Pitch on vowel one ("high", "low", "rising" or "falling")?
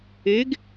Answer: rising